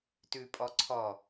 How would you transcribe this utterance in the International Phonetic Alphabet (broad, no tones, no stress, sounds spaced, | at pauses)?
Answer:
t ʉ pʼ ɔ ǀʰ ɔ